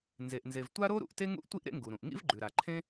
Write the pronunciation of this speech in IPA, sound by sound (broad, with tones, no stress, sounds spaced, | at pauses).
n z e˩ ʔ n z e˩ v tʷ a˥ ɾ o˥ ɾ ṵ˩ ʔ t e˥ ŋ ṵ˥ ʔ tʷ i˥ ʔ ɾ ḛ˥ ŋ ɡ u˩ ɾ ũ˩ ʔ ŋ ḭ˥ v ɡ͡ǃ ʉ˩ ɾ a˩ ǃʰ ẽ˥